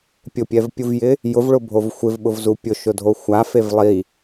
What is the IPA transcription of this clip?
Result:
pʲ ʊ pʲ ɛ v pʲ u v j ɪ | j ʊ v ɭ ʊ bʱ o v xʷ ɪ v ɓ ʊ v z u pʲ ʊ ʃ ʊ dʱ o xʷ a f e v lˠ i

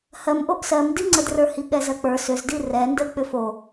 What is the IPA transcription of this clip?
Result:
h ɜ m ʔ o ʔ s ɜ m d i ŋ͡ǀ ə d r ə˞ h i ɠ ɛ z ɜ k͡p ə˞ s ʏ z d i r ɛ n d ə k͡p ʏ f o

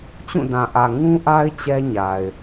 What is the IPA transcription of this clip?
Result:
t͡ɕ ũ˦˨ d ã˨ ʔ ä˨ ŋ ũ˦ ʔ a˦ ɪ̯ t͡ɕ ɛ˦ ɲ a˨ ɪ̯

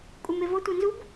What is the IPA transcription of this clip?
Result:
kʷʼ e m e v ɤ tʷ e n z u b

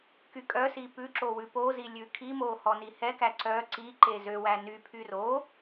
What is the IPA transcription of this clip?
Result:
k y kʼ œ s i p ʉ ǁ o w ʉ p o z i lʲ ʉ kʰ i m o h ɔ n i h ɛ k æ ǀ œ ǀ i ǃ e z ø w æ n y pʰ y r o

